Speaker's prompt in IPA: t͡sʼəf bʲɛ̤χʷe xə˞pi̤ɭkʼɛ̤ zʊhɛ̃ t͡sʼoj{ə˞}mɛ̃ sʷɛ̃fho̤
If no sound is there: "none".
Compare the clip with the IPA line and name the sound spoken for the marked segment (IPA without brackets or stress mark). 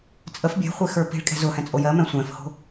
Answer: ɜ